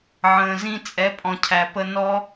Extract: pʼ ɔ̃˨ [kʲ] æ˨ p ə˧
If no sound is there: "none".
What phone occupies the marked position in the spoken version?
cʰ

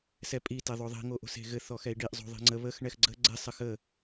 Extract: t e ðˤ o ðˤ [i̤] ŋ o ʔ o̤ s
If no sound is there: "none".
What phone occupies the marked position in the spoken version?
i̤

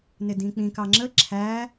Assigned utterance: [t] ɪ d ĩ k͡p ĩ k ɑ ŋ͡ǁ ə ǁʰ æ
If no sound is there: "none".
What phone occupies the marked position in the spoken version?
n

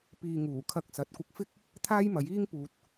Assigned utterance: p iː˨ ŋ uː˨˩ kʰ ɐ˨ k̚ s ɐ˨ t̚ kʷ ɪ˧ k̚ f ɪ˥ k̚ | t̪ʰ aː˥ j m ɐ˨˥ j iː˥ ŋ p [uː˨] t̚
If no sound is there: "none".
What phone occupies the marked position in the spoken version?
uː˨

